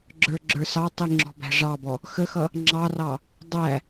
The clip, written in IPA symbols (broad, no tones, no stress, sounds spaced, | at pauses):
ɡ͡ǁ ə˞ ɡ͡ǁ ə˞ s ɑ tˤ i ŋ͡ǁ ɔ̤ b æ̤ ʐ ɑ b ɔ | x ə x ʌ | ŋ͡ǁ ɑ r ɑ | dˤ æ